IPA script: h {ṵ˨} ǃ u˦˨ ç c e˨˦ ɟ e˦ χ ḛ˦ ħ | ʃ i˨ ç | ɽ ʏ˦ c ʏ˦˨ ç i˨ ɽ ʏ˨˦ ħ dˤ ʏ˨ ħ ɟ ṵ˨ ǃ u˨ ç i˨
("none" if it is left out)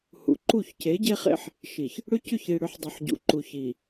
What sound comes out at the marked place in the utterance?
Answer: ṵ˨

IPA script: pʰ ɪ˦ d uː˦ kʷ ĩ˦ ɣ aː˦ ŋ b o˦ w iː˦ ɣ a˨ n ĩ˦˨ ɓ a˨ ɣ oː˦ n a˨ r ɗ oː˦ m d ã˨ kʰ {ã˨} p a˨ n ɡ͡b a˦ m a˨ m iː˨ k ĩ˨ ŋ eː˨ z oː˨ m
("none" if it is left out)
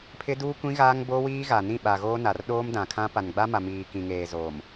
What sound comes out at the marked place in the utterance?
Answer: ã˦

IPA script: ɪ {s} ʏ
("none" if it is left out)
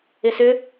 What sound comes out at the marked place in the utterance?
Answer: s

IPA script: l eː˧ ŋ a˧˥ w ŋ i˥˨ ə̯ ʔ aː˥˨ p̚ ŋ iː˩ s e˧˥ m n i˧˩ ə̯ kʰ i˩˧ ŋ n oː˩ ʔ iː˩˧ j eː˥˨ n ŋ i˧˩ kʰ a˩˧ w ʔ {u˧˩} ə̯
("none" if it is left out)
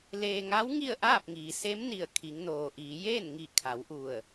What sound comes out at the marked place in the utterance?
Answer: u˧˩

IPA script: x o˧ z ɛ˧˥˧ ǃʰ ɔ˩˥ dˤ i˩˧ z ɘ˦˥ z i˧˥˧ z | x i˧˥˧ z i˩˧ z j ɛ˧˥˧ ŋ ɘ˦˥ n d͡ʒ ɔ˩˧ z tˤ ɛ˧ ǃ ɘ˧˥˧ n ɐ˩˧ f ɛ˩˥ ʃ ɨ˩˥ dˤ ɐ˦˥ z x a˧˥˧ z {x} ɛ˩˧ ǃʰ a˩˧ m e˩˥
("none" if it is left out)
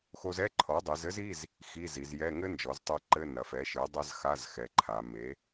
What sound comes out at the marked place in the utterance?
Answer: x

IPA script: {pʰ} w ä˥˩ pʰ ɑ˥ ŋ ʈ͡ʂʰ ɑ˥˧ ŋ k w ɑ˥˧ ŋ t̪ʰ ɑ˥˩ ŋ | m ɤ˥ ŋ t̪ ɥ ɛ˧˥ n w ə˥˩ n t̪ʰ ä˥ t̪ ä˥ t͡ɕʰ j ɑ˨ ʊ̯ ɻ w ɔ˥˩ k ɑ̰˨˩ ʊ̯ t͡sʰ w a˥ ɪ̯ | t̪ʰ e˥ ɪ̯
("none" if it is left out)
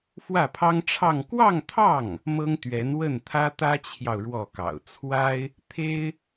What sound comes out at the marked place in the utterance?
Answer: f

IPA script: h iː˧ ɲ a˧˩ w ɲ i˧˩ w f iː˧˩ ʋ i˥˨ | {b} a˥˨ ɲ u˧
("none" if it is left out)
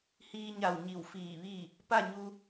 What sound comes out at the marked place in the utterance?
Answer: p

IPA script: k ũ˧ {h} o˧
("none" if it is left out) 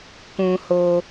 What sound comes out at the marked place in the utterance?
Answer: h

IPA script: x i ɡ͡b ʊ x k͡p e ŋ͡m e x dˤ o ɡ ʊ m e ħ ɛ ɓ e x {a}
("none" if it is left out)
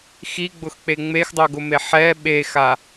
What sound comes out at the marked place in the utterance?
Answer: a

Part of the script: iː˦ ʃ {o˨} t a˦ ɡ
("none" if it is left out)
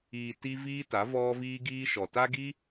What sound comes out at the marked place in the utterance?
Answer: ɔ˨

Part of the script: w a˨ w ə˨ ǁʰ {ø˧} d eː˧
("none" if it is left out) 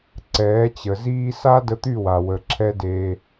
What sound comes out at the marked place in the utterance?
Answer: ɛ˧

